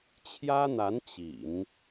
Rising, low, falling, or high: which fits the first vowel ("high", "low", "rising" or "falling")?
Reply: high